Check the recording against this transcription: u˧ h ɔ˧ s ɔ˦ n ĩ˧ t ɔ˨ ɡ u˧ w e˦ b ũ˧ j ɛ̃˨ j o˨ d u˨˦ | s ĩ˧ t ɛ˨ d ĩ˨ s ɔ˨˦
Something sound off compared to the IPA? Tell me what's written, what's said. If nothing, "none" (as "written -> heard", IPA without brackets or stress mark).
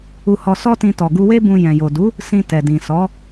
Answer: n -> t